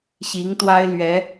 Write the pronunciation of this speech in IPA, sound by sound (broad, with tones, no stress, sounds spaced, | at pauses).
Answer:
ɕ i˧˥ ŋ t̪ w a˥ ɪ̯ l ɥ ɛ˧˥